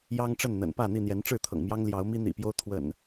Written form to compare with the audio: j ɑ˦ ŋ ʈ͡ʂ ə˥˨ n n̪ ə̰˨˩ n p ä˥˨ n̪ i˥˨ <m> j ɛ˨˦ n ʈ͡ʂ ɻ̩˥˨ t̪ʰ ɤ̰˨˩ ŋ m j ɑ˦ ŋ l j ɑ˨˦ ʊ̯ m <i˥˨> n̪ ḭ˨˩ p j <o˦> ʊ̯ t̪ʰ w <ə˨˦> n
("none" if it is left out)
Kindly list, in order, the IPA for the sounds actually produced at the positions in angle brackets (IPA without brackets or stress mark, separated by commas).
n̪, i˦, o˦, ə̰˨˩